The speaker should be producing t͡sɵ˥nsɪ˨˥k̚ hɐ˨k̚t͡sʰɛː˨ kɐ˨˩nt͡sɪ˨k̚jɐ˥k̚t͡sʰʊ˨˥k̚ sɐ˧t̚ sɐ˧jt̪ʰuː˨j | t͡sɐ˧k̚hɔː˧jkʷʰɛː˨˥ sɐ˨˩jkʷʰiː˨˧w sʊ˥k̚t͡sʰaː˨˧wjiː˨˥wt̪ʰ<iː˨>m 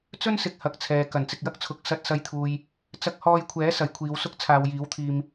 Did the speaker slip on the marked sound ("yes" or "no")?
no